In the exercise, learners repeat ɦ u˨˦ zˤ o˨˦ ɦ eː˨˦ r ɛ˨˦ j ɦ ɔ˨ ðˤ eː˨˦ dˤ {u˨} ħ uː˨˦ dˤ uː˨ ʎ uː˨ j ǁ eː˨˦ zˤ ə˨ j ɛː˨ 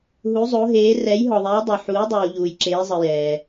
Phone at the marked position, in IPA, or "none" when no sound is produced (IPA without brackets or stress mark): o˨